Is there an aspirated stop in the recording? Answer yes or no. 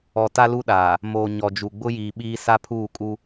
yes